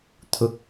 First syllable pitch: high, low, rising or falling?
rising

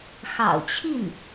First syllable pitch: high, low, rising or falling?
low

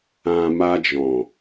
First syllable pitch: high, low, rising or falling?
low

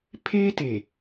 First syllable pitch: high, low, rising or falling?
high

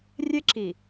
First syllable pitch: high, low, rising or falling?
high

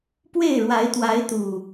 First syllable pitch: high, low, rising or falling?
falling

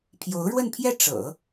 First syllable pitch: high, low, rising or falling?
rising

